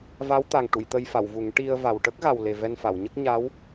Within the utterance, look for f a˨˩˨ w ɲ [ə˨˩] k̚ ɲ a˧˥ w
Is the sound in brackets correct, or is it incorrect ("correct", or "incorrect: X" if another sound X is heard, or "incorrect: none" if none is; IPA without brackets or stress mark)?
incorrect: ə˦˥